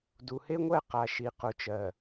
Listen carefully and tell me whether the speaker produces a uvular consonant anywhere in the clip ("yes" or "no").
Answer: yes